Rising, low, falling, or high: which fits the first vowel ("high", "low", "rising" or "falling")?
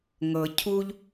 low